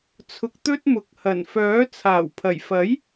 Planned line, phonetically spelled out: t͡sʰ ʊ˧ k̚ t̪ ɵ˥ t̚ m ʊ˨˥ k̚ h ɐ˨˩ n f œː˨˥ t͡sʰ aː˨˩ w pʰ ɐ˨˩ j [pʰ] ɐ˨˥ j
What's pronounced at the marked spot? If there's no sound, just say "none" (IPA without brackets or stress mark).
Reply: f